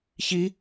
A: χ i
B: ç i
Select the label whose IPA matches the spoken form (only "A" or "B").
B